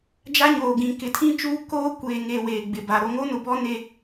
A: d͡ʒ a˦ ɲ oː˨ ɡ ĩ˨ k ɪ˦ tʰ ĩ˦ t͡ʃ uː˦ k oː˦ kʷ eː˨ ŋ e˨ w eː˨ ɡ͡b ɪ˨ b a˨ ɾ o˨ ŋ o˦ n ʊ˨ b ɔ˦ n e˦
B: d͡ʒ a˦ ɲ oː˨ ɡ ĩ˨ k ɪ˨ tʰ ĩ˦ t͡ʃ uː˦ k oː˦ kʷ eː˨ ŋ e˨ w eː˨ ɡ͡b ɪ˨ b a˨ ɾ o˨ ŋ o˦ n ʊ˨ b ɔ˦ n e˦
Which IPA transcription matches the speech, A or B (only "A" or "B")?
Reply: B